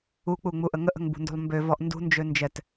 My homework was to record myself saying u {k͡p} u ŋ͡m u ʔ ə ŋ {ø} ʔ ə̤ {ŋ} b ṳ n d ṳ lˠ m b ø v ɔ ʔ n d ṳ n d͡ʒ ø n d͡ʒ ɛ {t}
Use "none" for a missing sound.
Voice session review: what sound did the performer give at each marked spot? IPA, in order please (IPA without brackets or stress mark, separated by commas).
k͡p, ə, ŋ, t